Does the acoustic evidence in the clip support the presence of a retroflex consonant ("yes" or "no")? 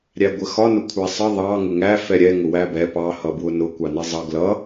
no